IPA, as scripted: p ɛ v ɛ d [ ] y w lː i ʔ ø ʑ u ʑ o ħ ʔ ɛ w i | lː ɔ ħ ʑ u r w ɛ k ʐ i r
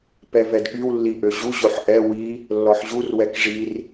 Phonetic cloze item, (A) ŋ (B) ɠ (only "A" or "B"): B